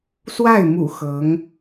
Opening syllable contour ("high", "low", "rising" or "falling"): falling